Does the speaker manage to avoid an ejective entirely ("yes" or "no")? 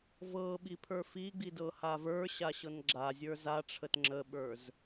yes